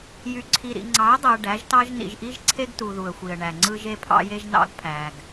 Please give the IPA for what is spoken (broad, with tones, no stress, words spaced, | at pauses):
jy˨ǀʰi˨ɾḭ˨ ŋ͡ǀɑ˨˦ə̯dˤe˨ə̯ ɖæ˨˦ʒtɑ˦ʒ nḭ˨ʒʔi˦ʒǀʰe˦ɡtu˨ ðu˨ə̯xʷi˨ə̯ɳæ˨ ŋ͡ǀɯ˦ʒe˦pʰɑ̰˦je˦ʒ nɑ̰˦ɡpʰæ˨ɡ